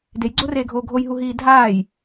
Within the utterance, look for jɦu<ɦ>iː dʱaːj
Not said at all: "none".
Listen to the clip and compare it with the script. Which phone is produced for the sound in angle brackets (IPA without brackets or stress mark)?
ɦ